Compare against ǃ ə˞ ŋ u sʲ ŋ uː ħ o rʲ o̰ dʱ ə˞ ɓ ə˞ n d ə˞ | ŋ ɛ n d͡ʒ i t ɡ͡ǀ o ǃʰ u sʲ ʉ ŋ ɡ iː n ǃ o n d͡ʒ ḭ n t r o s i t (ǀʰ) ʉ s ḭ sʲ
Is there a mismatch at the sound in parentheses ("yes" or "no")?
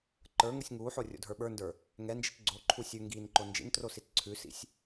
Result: no